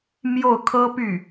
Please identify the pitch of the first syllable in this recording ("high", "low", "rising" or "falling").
falling